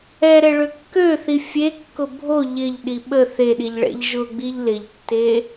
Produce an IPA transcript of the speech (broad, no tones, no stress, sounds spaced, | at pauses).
ɛ ɾ ɛ ɭ ø kː ø θ i fʲ e kː ʊ bʱ o ʎ ɪ ʎ ɗ i ɓ ə θ e ɗ i ʎ ɭ ɛ̰ ʎ ʒ ʊ ɡ͡b i ʎ l ɪ ʎ tː e